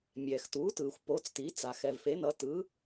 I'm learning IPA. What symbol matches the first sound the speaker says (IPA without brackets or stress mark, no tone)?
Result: mʲ